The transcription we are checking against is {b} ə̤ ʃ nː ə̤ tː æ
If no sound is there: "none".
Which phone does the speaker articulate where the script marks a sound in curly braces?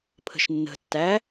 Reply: pʰ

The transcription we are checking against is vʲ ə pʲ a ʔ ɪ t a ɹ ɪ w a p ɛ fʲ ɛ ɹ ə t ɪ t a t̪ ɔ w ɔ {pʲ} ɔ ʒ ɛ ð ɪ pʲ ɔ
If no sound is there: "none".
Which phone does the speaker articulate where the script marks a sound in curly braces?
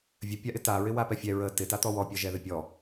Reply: pʲ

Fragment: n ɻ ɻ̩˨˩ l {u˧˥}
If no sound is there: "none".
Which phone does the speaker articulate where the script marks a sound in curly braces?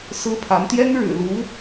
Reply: u˧˥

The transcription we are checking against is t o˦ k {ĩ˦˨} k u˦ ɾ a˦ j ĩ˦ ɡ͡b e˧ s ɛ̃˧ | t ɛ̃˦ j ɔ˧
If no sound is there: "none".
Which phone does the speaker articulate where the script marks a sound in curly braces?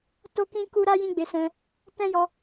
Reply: ĩ˦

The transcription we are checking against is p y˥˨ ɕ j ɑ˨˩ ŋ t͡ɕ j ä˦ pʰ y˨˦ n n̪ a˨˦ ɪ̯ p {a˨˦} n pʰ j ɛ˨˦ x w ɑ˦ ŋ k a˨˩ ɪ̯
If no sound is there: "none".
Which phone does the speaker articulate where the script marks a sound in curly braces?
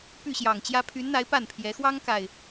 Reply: a˥˨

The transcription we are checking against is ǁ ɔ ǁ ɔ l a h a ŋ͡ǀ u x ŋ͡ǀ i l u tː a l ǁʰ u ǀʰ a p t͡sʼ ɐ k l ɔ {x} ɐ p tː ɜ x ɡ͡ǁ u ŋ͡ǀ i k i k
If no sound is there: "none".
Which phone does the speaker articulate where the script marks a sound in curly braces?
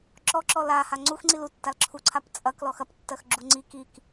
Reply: x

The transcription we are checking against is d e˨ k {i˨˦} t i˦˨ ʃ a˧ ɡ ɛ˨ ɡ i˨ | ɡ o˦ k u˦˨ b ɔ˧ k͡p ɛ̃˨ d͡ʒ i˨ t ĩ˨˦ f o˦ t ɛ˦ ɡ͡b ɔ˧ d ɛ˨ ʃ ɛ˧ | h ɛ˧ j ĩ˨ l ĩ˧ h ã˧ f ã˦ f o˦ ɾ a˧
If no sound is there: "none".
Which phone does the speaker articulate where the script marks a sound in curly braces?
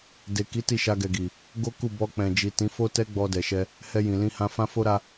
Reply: i˨˦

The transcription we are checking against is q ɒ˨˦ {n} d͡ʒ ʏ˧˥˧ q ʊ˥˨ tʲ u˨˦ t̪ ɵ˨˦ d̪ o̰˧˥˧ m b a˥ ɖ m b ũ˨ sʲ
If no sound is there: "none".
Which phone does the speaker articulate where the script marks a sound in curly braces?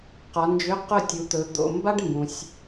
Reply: n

